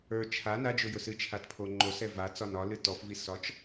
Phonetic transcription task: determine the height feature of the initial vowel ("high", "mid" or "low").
mid